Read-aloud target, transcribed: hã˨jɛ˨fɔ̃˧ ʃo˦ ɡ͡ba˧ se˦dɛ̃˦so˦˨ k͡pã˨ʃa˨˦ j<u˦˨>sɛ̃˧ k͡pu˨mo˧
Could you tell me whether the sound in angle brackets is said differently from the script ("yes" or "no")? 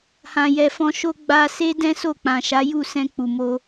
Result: no